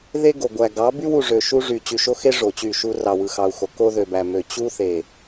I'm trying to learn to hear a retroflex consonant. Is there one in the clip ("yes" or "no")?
yes